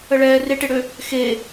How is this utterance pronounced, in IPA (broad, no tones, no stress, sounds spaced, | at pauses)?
ə ɭ ɛː r e ʈ e ɽ ø | x e